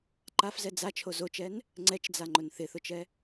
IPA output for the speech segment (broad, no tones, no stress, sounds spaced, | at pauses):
ǃ a f z ɛ d͡z a t͡ʃʰ o z o t͡ʃ ɛ n | ŋ͡ǀ ɛ t͡ʃ d͡z a ŋ͡ǃ ʊ n θ ɪ θ ʊ t͡ʃ ɛ